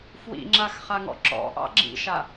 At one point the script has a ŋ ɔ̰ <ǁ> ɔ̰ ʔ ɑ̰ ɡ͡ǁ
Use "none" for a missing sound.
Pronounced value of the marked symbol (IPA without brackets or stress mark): ǁ